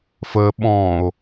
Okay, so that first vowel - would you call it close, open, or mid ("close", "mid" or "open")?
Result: mid